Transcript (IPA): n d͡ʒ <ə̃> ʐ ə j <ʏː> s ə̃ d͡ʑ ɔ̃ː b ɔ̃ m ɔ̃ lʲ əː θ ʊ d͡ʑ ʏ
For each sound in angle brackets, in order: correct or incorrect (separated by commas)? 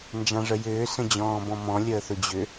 incorrect, correct